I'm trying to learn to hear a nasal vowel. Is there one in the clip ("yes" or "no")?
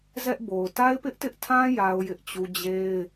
yes